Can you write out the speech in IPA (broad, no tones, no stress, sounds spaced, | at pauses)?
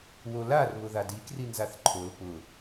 w o l a r β ʊ ð a d i k r i n z a θ ǃʰ o l p ʊ